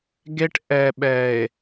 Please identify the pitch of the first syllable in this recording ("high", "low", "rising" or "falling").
high